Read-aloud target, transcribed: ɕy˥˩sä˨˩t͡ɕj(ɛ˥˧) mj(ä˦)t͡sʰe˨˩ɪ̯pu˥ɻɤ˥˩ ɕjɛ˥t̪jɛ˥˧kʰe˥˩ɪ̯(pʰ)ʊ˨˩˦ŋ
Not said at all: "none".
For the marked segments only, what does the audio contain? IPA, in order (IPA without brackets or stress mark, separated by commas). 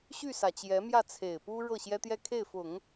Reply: ɛ˧˥, ä˥˩, f